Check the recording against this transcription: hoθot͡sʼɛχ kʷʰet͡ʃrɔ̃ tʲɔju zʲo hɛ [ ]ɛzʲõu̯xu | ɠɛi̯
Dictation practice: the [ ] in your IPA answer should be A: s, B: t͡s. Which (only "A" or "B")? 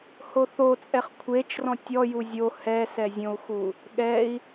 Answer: A